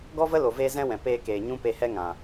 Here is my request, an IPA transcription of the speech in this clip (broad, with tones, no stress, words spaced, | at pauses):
ɡɔ˦və˦ lo˨ veː˧ zɛ̃˦wɛ̃˨ peː˧keː˨ ɲũ˦pe˧hɛ˦ ŋã˨